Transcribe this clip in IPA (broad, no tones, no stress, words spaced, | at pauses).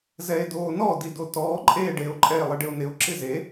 zɛe̯doːnɔ didotɔː ǃʼeːɖeo̯ ǃʼɛe̯lˠɪɖɪo̯nɪo̯ ǁɪze